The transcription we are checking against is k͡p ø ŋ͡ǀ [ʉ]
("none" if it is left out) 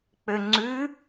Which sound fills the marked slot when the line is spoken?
ʉ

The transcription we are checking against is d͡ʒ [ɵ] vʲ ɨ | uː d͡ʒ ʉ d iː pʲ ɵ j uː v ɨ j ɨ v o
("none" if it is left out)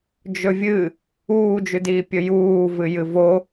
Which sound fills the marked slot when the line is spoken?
ɵ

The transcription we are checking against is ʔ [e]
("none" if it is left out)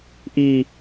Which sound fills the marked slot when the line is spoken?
i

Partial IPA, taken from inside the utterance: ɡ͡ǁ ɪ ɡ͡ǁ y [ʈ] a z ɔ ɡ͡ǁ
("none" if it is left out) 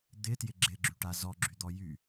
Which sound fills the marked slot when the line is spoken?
ʈ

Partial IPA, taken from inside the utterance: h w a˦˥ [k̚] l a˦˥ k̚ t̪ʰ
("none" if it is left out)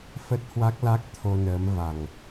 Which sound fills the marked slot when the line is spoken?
k̚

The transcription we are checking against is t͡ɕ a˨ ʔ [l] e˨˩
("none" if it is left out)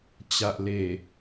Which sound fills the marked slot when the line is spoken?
l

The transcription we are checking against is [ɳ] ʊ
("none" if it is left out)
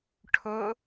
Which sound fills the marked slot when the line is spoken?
ʈʰ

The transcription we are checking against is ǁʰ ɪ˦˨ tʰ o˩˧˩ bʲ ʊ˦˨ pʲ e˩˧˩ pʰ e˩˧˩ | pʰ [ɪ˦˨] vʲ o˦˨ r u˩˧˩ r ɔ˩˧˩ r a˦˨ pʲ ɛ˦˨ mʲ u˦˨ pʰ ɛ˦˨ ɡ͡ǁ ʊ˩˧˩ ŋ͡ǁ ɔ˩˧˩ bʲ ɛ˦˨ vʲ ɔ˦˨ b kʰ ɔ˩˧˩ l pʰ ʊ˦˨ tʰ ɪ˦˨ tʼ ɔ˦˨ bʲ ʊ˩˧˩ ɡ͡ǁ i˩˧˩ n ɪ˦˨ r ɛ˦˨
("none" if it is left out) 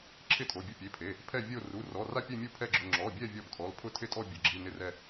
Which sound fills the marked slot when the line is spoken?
ɛ˦˨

